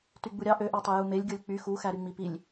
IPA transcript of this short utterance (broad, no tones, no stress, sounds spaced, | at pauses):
t y ɡ͡b u ɾʲ ɑ ʔ ø ʔ ɑ tˤ e j u m e lʲ ɡʲ o lʲ k͡p y x u x æ ɾ y ŋ͡m i p i lʲ